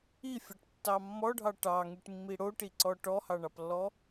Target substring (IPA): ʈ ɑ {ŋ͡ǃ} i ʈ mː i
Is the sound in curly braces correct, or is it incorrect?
incorrect